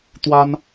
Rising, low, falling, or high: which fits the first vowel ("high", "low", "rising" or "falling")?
high